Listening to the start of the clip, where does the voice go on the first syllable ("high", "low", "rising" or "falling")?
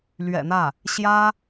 low